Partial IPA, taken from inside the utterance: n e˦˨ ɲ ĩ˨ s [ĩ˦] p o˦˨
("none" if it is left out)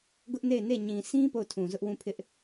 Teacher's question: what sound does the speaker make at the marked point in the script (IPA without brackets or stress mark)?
ĩ˦